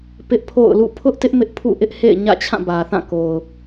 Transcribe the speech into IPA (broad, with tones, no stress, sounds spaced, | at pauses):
p ɪ˦ ʔ pʰ o̰˦˨ ʊ̯ l ṵ˦˨ pʰ ʊ˦ ʔ t ɪ˦ ʔ m ɪ˦ ʔ pʰ ṵ˦˨ ʔ ɪ˦ ʔ h ḛ˦˨ ɪ̯ ɲ ä̰˦˨ t͡ɕʰ ã˦˨ b ä˨ θ ã˦˨ k o˨ ʊ̯